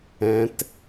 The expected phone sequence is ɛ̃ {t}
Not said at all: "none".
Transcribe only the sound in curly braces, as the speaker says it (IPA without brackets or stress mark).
t